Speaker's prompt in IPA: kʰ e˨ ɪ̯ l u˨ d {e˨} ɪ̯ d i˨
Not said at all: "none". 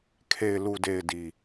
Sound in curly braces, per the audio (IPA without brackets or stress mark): e˨